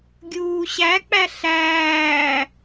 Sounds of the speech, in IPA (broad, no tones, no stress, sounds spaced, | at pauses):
ɡʲ uː ɕ æ k͡p æ ɬ æː